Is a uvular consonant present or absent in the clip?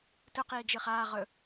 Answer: present